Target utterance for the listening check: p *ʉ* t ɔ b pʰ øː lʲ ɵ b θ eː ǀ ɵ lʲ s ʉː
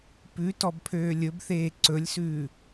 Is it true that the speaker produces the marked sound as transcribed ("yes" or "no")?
yes